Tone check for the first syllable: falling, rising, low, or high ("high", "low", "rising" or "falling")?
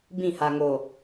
falling